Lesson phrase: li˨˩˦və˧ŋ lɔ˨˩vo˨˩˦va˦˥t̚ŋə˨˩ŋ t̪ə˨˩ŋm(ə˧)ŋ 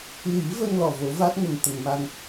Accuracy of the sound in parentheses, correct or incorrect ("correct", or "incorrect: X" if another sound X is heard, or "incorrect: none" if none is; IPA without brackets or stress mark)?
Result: incorrect: a˧